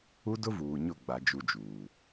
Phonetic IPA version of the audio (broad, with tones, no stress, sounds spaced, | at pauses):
u˦ d ʊ˦ v uː˨ ɲ ʊ˦˨ ɡ͡b a˦ d͡ʒ u˦ d͡ʒ uː˨